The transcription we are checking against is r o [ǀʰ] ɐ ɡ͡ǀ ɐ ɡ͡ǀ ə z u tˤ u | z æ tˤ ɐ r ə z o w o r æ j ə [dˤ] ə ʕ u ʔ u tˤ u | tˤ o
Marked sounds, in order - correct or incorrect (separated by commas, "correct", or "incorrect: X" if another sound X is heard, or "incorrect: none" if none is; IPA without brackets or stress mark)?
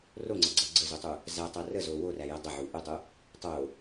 incorrect: ŋ͡ǀ, correct